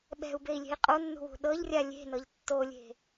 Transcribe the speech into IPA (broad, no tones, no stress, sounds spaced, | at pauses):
ɓ ɛ̤ u̯ b e i̯ lʲ e̤ i̯ qʼ o nː ṳ w ṳ ɗ ɤ ʎ rʲ a lʲ e̤ n ɤ ʎ tː o lʲ e̤